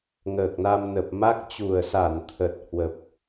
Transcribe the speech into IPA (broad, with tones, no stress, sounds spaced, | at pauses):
ŋ əː˨˩ k̚ n a˧ m n ə˨˩ p̚ m a˦˥ k̚ t͡ɕ u˨˩ ə̯ s a˧˩ n t̪ʰ ə˨˩ t̚ h w ə˨˩ p̚